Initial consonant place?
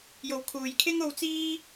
palatal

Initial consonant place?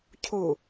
palatal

